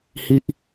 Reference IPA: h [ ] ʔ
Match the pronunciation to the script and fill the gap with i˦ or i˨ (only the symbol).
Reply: i˦